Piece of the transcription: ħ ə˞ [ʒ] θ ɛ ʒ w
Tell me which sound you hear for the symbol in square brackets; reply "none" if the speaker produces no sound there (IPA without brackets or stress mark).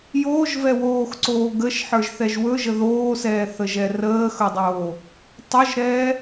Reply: ʒ